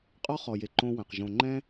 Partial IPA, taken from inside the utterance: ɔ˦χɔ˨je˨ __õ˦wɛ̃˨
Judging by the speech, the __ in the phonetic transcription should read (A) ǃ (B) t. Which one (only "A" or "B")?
A